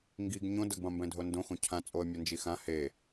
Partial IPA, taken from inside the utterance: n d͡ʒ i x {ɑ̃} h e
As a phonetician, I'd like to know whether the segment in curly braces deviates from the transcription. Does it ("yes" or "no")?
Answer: yes